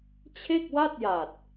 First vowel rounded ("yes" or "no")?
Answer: no